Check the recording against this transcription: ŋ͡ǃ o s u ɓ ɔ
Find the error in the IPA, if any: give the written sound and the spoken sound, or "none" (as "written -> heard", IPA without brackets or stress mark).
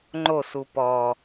ɓ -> p